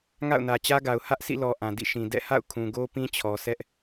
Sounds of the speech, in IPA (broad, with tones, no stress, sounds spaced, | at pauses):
ŋ a̰˦˨ ʊ̯ n ä˨ t͡ɕ ä˦ ɡ a˨ ʊ̯ h ä˦ ʔ sʰ ḭ˦˨ l ɔ˨ ʔ ã˨ d ḭ˦˨ ʃ ĩ˨ d ɛ̰˦˨ h a̰˦˨ ʊ̯ kʰ ũ˨ ɡ o˦ p ĩ˦ t͡ɕʰ ɔ˨ s ɛ˦ ʔ